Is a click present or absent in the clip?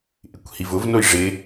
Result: absent